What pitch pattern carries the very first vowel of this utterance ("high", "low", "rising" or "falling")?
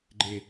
low